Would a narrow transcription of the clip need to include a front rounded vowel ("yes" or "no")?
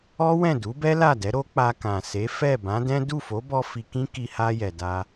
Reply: no